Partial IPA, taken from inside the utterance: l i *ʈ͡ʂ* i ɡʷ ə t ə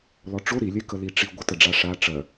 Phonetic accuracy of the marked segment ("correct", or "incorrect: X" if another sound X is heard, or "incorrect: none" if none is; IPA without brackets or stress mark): correct